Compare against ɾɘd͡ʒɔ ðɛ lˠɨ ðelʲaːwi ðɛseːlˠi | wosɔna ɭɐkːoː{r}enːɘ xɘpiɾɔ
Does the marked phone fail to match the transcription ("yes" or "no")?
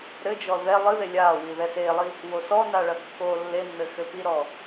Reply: yes